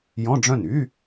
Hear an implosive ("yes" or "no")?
no